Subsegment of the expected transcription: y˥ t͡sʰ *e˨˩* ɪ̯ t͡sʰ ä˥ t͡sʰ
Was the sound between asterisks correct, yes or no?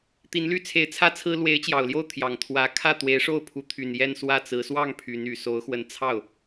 no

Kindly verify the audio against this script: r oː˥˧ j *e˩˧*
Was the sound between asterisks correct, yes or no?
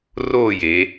yes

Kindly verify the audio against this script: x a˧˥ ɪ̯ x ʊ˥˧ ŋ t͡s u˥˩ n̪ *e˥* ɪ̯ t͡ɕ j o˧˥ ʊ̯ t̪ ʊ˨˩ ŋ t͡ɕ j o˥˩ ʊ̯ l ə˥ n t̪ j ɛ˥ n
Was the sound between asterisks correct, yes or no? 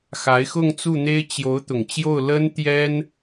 yes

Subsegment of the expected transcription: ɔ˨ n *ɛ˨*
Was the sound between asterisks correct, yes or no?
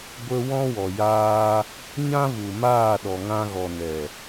yes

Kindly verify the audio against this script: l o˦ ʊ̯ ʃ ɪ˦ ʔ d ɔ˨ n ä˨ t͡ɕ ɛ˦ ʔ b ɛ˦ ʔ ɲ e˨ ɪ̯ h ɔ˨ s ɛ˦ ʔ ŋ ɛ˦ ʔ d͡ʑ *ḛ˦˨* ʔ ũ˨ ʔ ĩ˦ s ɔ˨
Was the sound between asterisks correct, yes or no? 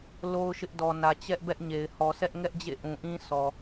yes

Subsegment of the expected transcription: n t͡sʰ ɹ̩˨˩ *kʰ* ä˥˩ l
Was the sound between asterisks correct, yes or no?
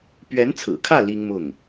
yes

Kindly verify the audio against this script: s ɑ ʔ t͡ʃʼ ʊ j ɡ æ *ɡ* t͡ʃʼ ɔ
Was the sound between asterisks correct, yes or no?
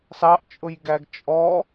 yes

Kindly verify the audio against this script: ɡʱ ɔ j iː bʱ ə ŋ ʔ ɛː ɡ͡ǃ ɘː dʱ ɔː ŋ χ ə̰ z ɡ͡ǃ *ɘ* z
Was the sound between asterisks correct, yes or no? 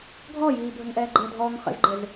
yes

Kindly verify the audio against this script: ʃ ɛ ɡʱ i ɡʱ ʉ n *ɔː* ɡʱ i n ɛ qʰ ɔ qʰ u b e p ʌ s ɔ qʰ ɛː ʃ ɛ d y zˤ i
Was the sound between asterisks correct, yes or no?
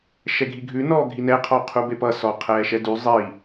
yes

